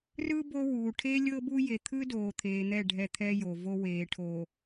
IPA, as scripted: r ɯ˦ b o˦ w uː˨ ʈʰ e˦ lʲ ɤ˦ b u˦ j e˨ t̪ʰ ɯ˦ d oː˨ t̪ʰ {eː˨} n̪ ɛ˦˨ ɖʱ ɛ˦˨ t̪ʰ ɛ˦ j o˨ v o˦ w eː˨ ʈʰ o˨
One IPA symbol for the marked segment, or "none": eː˨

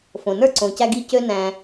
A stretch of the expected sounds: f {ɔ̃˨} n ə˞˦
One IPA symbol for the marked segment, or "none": õ˨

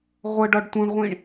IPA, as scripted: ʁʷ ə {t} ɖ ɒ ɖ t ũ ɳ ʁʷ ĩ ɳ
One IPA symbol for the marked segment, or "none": none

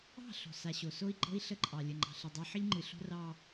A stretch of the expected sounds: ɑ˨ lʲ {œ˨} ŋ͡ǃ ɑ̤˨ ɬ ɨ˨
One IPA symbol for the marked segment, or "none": ə˨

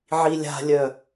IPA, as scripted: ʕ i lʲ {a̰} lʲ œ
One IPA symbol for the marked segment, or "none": a̤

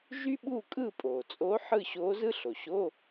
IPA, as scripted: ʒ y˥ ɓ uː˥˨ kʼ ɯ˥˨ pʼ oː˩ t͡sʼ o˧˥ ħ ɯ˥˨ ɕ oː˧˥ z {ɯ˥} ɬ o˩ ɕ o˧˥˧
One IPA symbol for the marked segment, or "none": ɯ˥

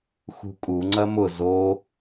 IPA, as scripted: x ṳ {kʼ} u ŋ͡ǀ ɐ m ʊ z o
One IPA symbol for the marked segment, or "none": kʼ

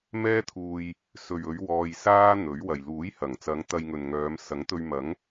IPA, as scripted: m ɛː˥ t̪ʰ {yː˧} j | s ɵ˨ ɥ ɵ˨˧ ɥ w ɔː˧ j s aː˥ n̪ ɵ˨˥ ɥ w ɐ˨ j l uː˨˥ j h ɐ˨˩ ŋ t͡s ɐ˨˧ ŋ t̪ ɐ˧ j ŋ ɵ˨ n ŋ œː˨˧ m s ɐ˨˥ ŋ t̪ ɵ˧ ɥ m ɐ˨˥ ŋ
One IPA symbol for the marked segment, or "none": uː˧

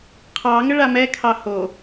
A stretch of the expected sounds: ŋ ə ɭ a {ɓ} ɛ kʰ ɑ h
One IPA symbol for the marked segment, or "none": m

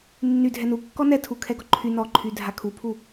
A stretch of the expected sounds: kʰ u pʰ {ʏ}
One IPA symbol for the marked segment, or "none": u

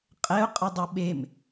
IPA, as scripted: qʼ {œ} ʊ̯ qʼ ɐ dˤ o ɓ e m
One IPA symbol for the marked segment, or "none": ɛ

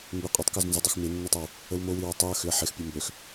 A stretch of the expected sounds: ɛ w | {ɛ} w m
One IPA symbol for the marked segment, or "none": ə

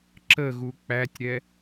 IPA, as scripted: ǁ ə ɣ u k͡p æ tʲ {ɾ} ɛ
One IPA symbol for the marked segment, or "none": ɾ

